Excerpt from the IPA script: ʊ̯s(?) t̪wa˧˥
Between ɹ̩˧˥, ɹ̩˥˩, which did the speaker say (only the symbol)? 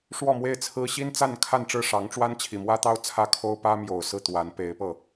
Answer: ɹ̩˥˩